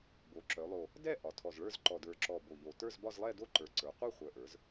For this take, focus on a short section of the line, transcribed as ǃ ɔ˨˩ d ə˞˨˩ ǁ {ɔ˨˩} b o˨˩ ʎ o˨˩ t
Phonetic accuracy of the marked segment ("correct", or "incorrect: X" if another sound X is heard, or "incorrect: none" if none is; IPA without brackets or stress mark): correct